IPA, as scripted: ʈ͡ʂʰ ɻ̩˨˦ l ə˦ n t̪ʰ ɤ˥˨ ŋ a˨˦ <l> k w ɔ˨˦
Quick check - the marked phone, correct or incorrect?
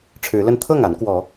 incorrect